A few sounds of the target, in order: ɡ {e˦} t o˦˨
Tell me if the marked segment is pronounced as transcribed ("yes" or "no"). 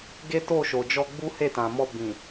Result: yes